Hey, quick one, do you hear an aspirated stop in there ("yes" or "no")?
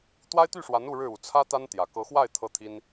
yes